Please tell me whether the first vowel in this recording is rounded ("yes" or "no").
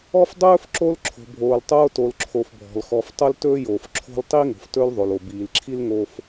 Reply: yes